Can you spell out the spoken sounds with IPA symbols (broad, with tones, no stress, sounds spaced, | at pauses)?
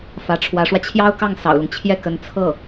f ä˧˥ ʈ͡ʂʰ w ä˧˥ ʂ w ä˧ t͡ɕʰ j ɑ˥ ʊ̯ k ɑ˥˩ ŋ s ɑ̰˨˩ ʊ̯ l ʊ˦ ŋ t͡ɕʰ j ɛ˥˩ k ə˧˥ n t͡sʰ ɤ˥˩